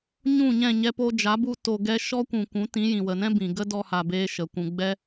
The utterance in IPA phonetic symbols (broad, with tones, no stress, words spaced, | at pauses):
ɲũ˦˨ɲɛ̃˦˨ɲɛ˧ po˧d͡ʒa˨˦bu˧ to˧ɡɛ˦ ʃɔ˦kʷũ˨kʷũ˨˦tĩ˨˦ jĩ˨wə˨nɛ̃˦ bĩ˨ɡə˦dɔ˧ ha˧beː˦ʃə˨kʷũ˧ ɡ͡bɛ˦